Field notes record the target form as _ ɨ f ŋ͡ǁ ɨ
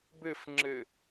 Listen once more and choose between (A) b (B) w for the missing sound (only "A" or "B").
A